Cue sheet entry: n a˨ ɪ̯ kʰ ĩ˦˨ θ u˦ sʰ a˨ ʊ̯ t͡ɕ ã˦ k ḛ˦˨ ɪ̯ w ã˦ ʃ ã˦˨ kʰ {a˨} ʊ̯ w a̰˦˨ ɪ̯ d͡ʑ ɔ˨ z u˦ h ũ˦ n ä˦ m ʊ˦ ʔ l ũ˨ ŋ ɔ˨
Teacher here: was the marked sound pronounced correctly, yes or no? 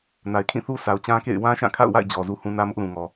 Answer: no